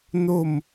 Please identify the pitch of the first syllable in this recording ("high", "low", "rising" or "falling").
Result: falling